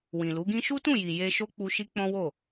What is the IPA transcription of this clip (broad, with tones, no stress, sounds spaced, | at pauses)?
w ĩ˨ l u˨˦ ɡ ĩ˦ ʃ u˦ t ũ˦˨ j i˨ j e˧ ʃ o˦ k͡p u˧ ʃ i˦ k͡p ɔ̃˦ w o˦˨